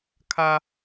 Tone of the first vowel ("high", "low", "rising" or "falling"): high